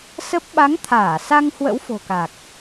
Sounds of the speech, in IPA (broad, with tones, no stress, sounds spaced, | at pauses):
s ə˦˥ p̚ ɓ a˨˦ ŋ t̪ʰ aː˧˩ s a˧ ŋ h w ə̰˧˥ w f o̤˨˩ k a˨˩ k̚